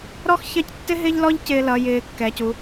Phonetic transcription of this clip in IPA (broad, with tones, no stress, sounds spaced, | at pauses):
ɾ ɔ˥ x ç ɜ˥˧ c tː ɪ˥ ɦ ɪ˥ ʎ l ɔ˥ ʎ c ɪː˧ l ʌ˩˧ j ɪː˩˧ kː ɛ˩˧ c u˩˧